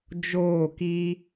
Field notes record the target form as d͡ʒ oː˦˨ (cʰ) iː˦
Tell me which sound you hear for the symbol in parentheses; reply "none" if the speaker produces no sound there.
k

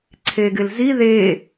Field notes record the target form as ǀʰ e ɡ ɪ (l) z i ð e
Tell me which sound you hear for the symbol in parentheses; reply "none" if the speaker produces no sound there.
l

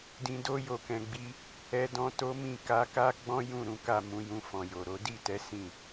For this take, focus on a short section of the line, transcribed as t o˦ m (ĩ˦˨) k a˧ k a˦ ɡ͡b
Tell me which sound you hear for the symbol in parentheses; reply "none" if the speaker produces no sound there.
ĩ˦˨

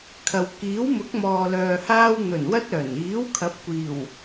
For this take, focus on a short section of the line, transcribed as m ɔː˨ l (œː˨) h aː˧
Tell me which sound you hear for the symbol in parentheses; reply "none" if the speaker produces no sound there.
œː˨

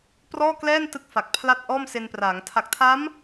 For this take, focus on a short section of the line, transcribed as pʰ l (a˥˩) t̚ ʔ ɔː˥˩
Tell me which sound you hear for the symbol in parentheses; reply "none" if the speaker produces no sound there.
a˥˩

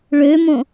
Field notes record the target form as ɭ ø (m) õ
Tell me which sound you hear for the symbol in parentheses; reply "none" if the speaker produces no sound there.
m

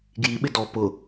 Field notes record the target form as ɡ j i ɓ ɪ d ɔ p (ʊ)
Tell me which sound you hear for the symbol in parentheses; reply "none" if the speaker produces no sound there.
ʊ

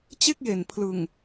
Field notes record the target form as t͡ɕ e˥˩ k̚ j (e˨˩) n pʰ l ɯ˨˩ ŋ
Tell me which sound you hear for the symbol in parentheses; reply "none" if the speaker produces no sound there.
e˨˩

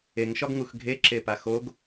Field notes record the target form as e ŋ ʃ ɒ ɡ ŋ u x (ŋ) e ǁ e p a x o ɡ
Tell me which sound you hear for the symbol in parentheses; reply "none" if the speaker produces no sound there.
ɡʱ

